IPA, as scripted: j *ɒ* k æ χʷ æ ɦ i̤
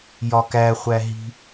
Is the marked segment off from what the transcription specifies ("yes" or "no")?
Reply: no